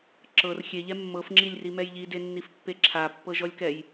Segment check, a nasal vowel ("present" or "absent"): absent